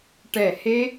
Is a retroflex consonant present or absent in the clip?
present